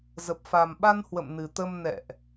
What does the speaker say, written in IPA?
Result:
z ə˨˩ p̚ f a˨˩ m ɓ a˧ n h w ə̰˧˨ m n ɨ˨˩ t̪ ə˧ m n ɛ̰˧˨ ʔ

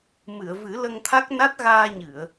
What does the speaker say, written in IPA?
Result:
m ɨ˨˩˨ ə̯ v ɨ˨˩˦ l ə˧ ŋ t̪ʰ a˦˥ k̚ n a˦˥ t̚ ɣ aː˧ ɲ ɨ˨˩˨ ə̯

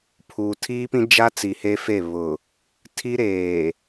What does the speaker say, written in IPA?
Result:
pʰ uː˨ tʰ iː˦ p ĩ˦ d͡ʒ a˦ t͡s i˨ h e˦ f e˦˨ β ʊ˨ | tʰ i˦ ɾ eː˨

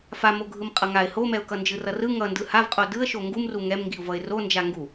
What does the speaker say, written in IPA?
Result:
f a m o ɡʱ ɯ m qʼ ʌ ŋ a ɪ̯ h o m ɛ ʊ̯ k ʌ n d͡ʒ ɯ r ʌ r ɯ ŋ ʌ n d ɯ h a v qʼ o d ɯ ə̯ ʃ o ŋ ɡ u m r u ŋ ɛ m ŋ ɡ i ʊ̯ v ʌ ɪ̯ r o n d͡ʒ a ŋ ɡ u

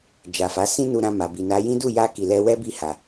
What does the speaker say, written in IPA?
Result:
d͡ʒ a˨ f a˨˦ s ĩ˦ n u˧ ɾ ã˧ m a˨ b i˨ n a˨˦ j ĩ˦ d u˦˨ j a˧ k i˨ l ɛ˧ w ɛ˦ b i˦˨ h a˨

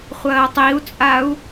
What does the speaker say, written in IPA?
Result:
χʷ ɐː tˤ i u̯ t͡sʼ a u̯

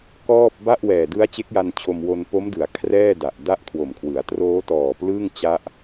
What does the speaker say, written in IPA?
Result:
k ɔː˥˩ p̚ b a˥˩ ʔ w ɛː˨˩ d ɯ˦˥ a̯ t͡ɕ e˦˥ k̚ j a˧ n t͡ɕʰ o˧ m w o˧ n p o˦˥ m d ɯ˩˦ a̯ kʰ r ɛː˥˩ d a˨˩ ʔ d a˥˩ ʔ kʰ w o˨˩ m kʰ w ɯ˩˦ a̯ t r oː˦˥ t ɔː˨˩ p l ɯː˥˩ ŋ t͡ɕ a˦˥ ʔ

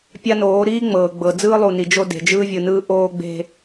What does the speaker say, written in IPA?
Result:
pʲ a˦ n oː˨˦ ɾ iː˦ ŋ͡m ɤː˨ ɡ͡b ɤ˨ d͡z ɯː˦ lˠ u˨ n i˨ d͡ʒ o˦ d e̤˨ d͡ʒ ɯː˦ vʲ ɯ˨ n ɯː˦ ʔ oː˦ ɡ͡b e̤˦

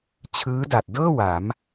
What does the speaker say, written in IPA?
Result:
t͡ɕʰ ɯː˦˥ d a˨˩ t̚ d ɤː˥˩ w a˩˦ m

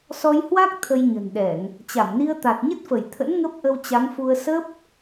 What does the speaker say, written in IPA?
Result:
s ɔ˧ j h w a˦˥ k̚ t̪ʰ ə˧ j ɲ ə̤˨˩ n ɗ ɛ˧˩˨ ŋ | t͡ɕ a˧˩ m n i˧ ə̯ t̪ a˨˩ t̚ ɲ ə˦˥ t̚ f ə˧˩ j t̪ʰ ə̰˧˥ n ŋ ə˦˥ p̚ ʔ ə˧ w t͡ɕ a˨˦ ŋ f u˧ ə̯ s ə˦˥ p̚

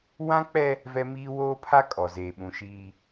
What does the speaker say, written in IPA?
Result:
w ã˦ k͡p ɛ˦ | v ɛ˦ m iː˦ w oː˦ pʰ a˦ kʼ ɔ˨ z eː˨ ɓ ũ˨ ʃ iː˦

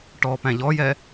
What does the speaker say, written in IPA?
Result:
ʈ ɔ p æ̃ ʎ ɔ j ɛ

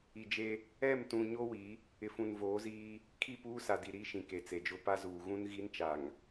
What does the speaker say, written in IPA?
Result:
i˨ d͡ʒ e˦ | ɛ˦˨ m t ũ˨ ɲ o˦ w i˨˦ | ɪ˨ f ũ˨ n v oː˨˦ z iː˦ | kʰ i˦˨ p uː˦ s a˨ d i˨ ɾ i˦ ʃ ĩ˨ k e˨ t͡s e˨ d͡ʒ ʊ˦ p a˦ z uː˨ ɣ ũ˦ n ɣ i˦ n t͡ʃ a˨ ŋ

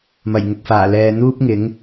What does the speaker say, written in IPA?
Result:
m ɐ˨˩ j ŋ ʊ˨ k̚ f aː˨˩ l ɛː˨ n̪ uː˥ p̚ ŋ ɪ˨˥ ŋ

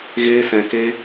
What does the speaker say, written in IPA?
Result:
ɣ eː˦ s ɛ̃˧ k e˦

